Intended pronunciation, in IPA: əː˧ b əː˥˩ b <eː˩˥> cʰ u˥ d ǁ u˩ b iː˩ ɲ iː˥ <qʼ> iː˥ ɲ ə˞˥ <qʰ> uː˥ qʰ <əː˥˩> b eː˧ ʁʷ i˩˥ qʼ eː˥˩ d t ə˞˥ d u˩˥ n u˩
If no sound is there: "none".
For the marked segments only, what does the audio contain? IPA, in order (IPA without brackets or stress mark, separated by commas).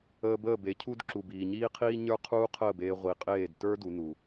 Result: e˩˥, qʰ, qʰ, əː˥˩